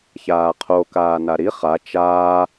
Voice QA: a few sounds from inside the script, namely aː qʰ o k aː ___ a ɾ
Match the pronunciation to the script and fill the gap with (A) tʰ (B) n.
B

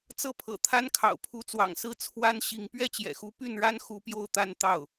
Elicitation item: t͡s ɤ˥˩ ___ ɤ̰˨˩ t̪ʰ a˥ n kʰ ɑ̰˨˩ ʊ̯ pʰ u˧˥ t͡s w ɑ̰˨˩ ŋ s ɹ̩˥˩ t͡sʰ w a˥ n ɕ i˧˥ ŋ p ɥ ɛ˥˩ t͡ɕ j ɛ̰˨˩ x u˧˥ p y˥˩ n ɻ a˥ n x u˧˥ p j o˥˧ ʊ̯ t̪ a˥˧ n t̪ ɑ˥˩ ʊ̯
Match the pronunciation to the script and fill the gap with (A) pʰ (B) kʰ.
A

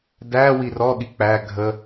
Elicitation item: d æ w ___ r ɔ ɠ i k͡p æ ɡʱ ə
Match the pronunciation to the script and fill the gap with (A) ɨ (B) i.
B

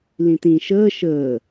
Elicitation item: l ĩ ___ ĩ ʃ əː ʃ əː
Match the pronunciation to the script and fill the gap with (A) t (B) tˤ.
A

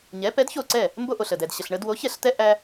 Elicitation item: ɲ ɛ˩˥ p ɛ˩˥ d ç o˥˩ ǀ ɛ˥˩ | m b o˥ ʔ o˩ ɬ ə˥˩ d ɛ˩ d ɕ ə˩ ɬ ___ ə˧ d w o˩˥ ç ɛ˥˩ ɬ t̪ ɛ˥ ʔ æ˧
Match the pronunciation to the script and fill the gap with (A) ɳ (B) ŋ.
A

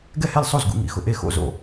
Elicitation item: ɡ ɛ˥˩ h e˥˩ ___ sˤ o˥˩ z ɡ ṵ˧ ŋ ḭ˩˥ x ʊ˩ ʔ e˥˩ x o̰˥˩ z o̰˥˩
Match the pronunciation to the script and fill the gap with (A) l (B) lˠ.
A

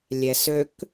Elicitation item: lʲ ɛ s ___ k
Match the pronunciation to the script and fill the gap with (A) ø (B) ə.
A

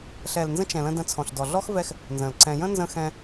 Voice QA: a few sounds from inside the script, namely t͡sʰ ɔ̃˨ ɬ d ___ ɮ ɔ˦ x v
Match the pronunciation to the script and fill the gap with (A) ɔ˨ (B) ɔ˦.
A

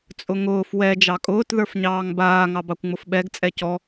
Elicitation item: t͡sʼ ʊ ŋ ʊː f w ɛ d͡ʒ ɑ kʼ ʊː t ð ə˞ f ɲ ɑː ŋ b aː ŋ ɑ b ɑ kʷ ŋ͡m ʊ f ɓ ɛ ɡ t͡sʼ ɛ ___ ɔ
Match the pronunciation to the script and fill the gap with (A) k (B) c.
B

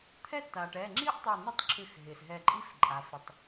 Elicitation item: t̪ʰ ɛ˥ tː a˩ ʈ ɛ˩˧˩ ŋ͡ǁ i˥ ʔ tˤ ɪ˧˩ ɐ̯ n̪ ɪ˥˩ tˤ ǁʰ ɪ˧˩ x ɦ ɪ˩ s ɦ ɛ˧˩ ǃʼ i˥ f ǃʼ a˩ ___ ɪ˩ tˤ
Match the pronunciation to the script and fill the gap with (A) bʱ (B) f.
B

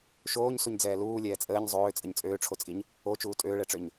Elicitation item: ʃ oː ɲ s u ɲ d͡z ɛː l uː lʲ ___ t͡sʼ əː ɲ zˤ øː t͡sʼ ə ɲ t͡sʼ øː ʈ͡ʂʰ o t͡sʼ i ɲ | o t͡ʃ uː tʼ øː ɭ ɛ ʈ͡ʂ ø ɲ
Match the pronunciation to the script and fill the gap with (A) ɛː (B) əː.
A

